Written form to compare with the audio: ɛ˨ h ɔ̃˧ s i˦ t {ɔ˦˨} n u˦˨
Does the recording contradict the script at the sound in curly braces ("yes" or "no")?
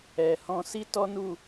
yes